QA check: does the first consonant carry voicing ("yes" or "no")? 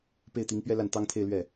no